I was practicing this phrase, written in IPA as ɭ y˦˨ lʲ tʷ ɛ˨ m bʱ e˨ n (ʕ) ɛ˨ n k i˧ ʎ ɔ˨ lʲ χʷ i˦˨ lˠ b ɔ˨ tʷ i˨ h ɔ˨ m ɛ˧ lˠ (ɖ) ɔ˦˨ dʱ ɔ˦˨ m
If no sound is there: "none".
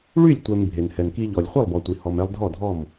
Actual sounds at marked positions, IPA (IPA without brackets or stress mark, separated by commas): h, dʱ